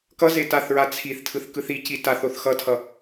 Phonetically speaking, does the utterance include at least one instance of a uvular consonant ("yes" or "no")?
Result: no